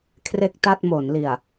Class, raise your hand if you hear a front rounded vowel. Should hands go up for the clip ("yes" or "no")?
no